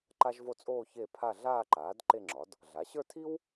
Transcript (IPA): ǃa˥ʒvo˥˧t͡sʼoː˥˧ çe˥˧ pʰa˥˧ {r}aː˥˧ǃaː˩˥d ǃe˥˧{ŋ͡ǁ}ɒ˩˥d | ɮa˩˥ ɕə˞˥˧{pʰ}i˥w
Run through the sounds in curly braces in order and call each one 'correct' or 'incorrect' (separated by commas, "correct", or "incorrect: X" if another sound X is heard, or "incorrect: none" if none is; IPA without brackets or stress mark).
incorrect: ɮ, correct, incorrect: tʰ